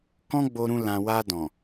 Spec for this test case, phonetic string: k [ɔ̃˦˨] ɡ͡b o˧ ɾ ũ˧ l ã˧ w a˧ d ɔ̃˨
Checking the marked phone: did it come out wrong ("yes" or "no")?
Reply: yes